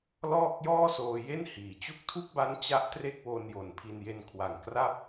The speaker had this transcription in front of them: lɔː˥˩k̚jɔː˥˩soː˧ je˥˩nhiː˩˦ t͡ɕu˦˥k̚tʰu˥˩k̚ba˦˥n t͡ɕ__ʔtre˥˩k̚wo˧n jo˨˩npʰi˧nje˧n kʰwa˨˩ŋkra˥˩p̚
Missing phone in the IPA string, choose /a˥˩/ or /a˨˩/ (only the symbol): a˥˩